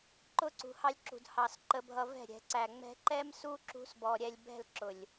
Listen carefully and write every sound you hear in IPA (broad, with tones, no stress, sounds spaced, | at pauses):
ǃ ʊ˦ ǀ ṳ˨ h ɑ˧ lʲ ǁ ṳ˨ d h ɑ˨ s ǃ ə˧ bʱ ʌ˧ v ɛ̤˦˨ ɾʲ ɛ̤˨ ǀ æ˨ ŋ͡m ɛ̤˧ ǃ ɛ˦ m s u˦ ǁ ṳ˦ s b ɔ˧ ɾʲ ɛ˧ lʲ b ɛ̤˦˨ l ǁ ʊ˨ lʲ